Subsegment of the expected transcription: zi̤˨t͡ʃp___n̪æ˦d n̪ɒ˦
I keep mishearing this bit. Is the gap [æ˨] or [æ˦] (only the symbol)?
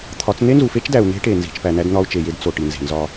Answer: æ˨